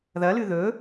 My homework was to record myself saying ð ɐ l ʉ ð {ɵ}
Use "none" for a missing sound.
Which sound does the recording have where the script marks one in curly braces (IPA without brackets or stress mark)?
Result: ɵ